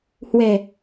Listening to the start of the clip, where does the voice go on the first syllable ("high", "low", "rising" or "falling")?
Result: low